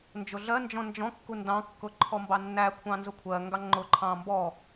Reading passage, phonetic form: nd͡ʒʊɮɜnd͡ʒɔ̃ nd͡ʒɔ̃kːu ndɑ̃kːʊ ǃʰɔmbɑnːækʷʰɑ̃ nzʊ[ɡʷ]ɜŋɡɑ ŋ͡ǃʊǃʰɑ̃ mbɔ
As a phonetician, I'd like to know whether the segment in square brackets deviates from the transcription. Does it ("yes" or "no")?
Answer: yes